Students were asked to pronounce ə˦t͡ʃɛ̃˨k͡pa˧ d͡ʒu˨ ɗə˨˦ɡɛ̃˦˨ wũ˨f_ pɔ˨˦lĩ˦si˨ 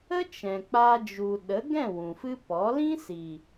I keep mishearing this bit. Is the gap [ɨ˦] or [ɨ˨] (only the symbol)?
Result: ɨ˦